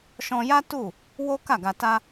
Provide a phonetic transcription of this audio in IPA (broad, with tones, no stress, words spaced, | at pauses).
ʃɔ̃˧ja˦tu˦˨ | wo˦ka˦˨ɡa˧ta˦